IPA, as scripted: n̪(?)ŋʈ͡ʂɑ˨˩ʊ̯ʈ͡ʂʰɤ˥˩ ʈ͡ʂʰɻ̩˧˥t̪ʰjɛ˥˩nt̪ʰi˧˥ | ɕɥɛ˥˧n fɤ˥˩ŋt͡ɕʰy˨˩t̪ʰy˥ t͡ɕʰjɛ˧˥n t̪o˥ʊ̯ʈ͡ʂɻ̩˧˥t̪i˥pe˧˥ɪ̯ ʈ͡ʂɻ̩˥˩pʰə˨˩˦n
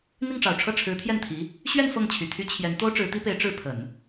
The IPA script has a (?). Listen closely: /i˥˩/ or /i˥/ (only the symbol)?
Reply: i˥˩